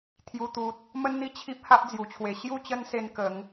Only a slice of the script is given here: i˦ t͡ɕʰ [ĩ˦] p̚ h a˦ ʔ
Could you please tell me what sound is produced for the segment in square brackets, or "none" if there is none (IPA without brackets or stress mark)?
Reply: i˦